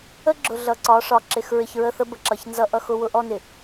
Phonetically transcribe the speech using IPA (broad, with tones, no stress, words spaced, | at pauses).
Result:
ə˦ɡ͡ǁʊ˨ ɮʌ˨ǀɒ˨˦ʂɒ˨ ǁɪ˨x ɹɪ˨çɹə˦˨θə˦ bə˨ǁʌ˨ç nzʌ˦ʔʌ˦x ʊ˦wʊ˦ ʔɔ˦nɪ˨